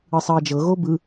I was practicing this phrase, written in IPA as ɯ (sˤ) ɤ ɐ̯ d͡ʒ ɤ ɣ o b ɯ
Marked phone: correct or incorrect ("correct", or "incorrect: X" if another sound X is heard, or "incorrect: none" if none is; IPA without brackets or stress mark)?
correct